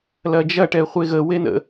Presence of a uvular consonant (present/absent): present